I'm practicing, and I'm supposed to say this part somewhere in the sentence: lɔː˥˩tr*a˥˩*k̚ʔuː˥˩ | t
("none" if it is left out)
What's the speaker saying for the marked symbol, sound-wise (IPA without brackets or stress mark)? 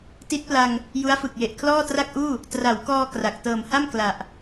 a˥˩